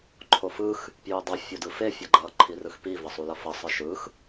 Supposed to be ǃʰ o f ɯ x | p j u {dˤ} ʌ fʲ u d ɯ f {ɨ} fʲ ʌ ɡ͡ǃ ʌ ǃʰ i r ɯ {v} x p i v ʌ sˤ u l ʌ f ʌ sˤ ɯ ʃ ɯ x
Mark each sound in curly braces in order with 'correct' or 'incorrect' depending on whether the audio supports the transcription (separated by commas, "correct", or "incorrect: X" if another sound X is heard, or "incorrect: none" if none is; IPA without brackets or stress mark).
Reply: correct, incorrect: e, incorrect: none